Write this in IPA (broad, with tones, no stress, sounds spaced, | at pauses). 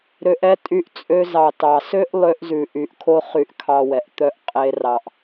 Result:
ɾ ø˧ ʔ ɛ˦ tʼ y˧ ʔ t͡sʼ ø˧ z ɑ˨ t ɑ˨ s ø˦ ʔ lˠ ø˧ ʔ z ʉ˨ ʔ y˨ ʔ kʰ o˧ χ y˨ ʔ kʰ ɑ˨ w ɛ˨ ʔ t̪ œ˦ ʔ qʼ e˧ r ɑ˨ ʔ